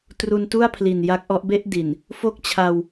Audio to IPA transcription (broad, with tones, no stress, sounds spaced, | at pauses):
t r u˧ n t u˥˩ a̯ pʰ l i˨˩ n j a˦˥ k̚ ʔ ɔ˦˥ ʔ b e˥˩ ʔ d i˨˩ n | f o˥˩ k̚ t͡ɕʰ a˧ w